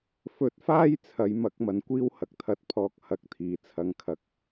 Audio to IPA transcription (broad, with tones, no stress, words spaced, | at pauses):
fɵ˨˥t̚faː˥j t͡sʰɐ˨˧j mɐ˨˥k̚mɐ˨˩nkʷiː˥w hɐ˨˥k̚t̪ʰɐ˧t̚pʰɔː˧k̚ hɐ˨˥k̚t̪ʰiː˨˩t͡sʰɐ˧ŋkʰɐ˧k̚